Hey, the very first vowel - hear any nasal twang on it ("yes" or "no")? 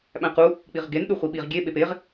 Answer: yes